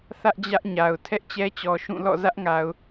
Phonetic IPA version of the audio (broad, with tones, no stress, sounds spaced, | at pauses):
θ ä˦ ʔ d͡ʑ ä˦ ʔ ɲ a˨ ʊ̯ tʰ ɛ˦ ʔ t͡ɕ ɛ˦ t͡ɕ ɔ˨ ʃ ũ˦˨ l ɔ̰˦˨ z ä˦ ʔ ŋ a˨ ʊ̯